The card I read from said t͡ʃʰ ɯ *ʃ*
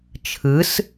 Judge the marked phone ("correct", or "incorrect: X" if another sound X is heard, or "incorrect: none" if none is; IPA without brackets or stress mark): incorrect: s